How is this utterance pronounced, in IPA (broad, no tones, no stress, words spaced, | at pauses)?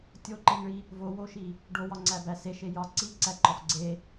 tʲoǃeŋɭi | vowoʃi | ɖowɒŋ͡ǀæbæ seʃe jɒ ǀiǀæǃɒf ɡ͡ǀe